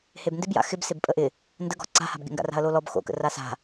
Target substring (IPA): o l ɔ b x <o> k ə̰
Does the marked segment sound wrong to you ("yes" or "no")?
yes